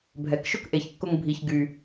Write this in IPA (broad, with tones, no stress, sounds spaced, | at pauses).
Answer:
bʱ ɛ˨ k ʃ ʊ˦ k ʔ e˨ ç kː ʊ˧ ŋ bʱ i˧ ç ɡ y˧